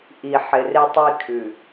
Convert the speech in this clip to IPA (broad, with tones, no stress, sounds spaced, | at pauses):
ʔ i˨ ħ ɪ˨ r ɪ˦ tˤ i˦ kʰ ʉ˨